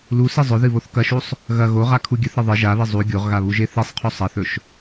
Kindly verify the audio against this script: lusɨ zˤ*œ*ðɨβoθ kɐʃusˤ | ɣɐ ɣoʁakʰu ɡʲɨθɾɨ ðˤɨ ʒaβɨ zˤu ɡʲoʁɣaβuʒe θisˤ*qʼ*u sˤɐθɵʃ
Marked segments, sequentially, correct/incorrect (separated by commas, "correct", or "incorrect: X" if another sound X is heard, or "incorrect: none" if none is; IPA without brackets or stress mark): incorrect: ɵ, incorrect: qʰ